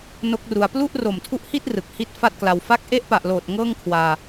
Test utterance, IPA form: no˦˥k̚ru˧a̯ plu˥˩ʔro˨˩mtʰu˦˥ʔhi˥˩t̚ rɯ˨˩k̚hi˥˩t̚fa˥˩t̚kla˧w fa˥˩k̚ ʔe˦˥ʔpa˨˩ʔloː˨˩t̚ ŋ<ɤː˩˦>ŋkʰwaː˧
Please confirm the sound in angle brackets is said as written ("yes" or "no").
no